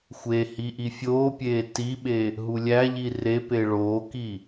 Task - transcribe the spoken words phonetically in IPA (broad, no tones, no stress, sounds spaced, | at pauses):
xʷ e h i ʔ i fʲ oː pʲ eː t i ɓ e | ɦ u lʲ æ ʎ i r e p e ɭ oː k i